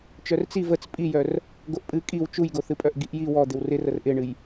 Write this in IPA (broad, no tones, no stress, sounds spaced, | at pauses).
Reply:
t͡ʃ œ r t͡s i v ə t͡s pʼ i j œ r | ɡ o ʔ pʼ ɨ kʼ i w t͡ʃ u j ɡ o θ ɨ pʼ œ ʔ ɡ i ʔ j i w ɔ d̪ ɪ w r ɪ r ə r ʔ ɪ ɳ ɨ j